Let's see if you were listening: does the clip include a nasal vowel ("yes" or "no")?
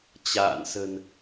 no